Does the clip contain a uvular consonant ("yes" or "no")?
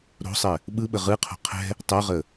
yes